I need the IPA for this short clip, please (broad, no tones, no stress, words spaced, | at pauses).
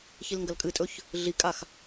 çilŋɡɐlkʼɨtʼɵç | ɮikʼax